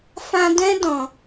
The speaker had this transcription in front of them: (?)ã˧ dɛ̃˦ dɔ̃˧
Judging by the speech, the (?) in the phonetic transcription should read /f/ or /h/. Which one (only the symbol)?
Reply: f